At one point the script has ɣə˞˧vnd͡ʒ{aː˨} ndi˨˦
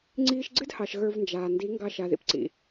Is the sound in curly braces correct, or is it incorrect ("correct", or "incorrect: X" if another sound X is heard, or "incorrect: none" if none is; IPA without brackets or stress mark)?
correct